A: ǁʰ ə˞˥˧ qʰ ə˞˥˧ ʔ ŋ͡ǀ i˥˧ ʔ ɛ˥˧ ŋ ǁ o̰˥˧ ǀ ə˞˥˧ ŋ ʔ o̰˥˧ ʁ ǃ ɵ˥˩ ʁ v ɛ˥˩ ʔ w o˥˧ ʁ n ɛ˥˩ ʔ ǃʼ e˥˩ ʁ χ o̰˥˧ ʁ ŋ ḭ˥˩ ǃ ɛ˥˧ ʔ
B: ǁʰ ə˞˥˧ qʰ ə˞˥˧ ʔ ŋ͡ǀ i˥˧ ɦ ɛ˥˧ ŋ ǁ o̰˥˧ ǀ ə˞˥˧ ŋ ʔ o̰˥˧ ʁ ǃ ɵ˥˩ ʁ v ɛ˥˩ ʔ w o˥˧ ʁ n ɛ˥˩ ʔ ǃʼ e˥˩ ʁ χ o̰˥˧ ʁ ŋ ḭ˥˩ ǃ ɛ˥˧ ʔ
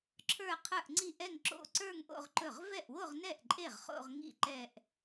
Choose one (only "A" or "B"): A